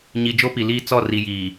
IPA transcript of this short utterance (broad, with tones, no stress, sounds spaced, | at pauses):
ɲ i˨ d͡ʒ o˦ p i˨ l iː˦ t͡s ɔ˦˨ r i˨ j iː˨